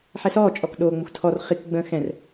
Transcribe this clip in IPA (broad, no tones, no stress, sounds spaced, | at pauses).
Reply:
ħ ɛ s ɔː t͡ʃʼ ɔ k ɗ oː ŋ͡m ə xʷ tʰ ɔ r χ i k ɡ͡b ə̃ː x ɛ̃ r